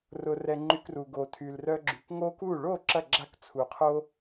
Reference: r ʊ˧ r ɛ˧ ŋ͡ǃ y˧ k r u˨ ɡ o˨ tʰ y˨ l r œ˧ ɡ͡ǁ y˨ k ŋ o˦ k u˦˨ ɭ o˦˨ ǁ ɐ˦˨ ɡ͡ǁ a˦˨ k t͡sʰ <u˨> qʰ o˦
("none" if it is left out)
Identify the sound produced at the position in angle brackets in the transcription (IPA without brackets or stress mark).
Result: u˨